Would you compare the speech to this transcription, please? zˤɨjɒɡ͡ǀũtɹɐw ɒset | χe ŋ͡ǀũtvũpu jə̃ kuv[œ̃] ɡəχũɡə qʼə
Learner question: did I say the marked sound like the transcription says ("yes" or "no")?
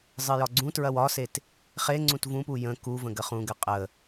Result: no